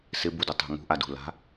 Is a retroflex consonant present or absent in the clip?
absent